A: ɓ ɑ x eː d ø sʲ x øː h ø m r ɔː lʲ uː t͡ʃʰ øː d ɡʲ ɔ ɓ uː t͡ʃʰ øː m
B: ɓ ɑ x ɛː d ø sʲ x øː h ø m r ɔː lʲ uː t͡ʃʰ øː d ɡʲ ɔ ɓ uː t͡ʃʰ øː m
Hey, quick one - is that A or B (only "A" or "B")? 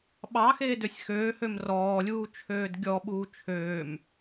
A